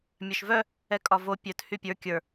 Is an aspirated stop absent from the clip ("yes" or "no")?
yes